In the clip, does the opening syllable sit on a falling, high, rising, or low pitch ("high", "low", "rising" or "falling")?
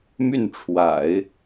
falling